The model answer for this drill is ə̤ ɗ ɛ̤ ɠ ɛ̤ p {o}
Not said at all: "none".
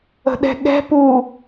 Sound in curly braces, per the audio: u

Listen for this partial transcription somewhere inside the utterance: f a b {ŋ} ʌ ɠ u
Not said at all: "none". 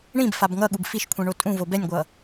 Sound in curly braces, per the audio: ŋ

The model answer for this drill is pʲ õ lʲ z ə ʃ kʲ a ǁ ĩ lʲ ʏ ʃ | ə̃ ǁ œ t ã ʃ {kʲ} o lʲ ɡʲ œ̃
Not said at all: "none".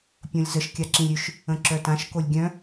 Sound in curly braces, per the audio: k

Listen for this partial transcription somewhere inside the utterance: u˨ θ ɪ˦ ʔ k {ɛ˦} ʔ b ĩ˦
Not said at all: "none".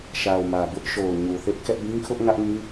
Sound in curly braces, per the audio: ɛ˦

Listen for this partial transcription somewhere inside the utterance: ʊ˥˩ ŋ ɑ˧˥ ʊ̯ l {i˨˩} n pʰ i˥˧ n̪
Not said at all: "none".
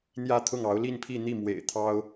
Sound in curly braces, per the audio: i˥˧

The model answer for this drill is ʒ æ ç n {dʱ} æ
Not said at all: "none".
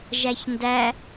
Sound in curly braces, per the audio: d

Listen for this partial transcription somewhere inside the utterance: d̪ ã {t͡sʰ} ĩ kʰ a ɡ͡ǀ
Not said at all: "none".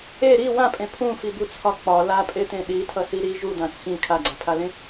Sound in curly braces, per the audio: t͡sʰ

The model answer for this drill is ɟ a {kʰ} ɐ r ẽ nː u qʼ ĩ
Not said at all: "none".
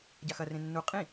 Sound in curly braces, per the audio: x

